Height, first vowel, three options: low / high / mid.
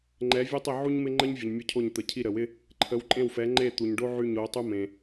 mid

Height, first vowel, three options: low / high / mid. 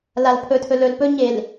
low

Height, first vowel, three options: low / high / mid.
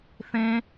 mid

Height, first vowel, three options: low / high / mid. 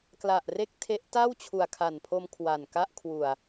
low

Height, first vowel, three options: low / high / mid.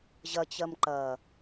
low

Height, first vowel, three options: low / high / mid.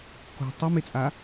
mid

